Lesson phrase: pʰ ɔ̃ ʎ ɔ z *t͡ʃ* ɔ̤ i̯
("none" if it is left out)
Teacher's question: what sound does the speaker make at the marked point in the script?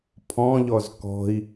k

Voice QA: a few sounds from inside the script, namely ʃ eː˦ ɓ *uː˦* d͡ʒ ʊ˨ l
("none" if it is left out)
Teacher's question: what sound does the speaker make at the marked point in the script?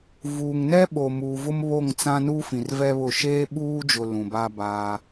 uː˦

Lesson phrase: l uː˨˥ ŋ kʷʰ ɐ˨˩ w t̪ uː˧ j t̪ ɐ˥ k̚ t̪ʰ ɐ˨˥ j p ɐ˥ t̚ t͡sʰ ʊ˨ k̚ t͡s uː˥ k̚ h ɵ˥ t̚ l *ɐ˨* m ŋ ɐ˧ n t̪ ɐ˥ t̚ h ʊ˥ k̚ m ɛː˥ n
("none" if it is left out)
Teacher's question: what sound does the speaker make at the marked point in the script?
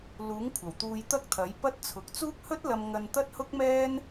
ɐ˧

